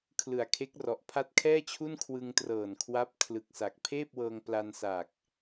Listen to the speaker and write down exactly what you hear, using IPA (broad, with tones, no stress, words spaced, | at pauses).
kʰlɯ˨˩a̯kʰe˦˥k̚rɔ˨˩ʔ pʰa˦˥t̚kʰɛː˥˩t͡ɕʰu˥˩n kʰwɯ˧ŋtrɤː˨˩n kʰwa˦˥p̚ kʰlɯ˨˩k̚sa˨˩k̚ pʰeː˥˩p̚wɤː˧ŋ pla˧nsaː˨˩k̚